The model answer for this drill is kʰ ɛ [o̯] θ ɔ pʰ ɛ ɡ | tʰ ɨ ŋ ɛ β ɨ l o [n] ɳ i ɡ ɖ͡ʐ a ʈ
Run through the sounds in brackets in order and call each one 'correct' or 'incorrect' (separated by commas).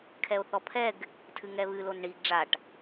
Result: correct, correct